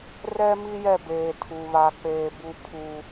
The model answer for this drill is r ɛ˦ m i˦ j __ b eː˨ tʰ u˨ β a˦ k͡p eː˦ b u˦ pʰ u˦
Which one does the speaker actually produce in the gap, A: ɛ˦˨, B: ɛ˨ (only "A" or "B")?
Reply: A